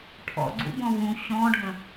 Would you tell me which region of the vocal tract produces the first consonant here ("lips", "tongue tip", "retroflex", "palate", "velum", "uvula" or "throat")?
retroflex